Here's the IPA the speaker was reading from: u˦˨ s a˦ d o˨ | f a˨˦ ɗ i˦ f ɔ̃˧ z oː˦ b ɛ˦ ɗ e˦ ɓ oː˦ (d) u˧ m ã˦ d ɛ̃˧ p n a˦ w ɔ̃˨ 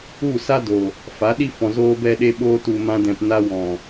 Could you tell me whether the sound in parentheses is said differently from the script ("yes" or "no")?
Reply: yes